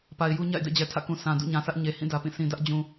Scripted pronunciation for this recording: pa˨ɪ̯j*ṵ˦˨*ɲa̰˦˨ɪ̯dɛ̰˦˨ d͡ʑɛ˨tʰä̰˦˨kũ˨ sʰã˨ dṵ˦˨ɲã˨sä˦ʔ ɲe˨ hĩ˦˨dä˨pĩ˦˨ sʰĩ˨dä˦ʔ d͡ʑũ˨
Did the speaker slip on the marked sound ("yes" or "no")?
yes